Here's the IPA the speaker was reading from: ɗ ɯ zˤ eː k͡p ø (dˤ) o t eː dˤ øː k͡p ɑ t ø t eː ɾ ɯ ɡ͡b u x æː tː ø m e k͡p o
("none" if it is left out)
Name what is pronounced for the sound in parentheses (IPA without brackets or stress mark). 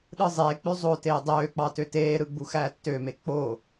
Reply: zˤ